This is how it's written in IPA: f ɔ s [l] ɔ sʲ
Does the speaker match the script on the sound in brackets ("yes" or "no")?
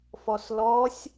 yes